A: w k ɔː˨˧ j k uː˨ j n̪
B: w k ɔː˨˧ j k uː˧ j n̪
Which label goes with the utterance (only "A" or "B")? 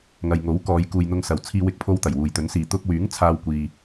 A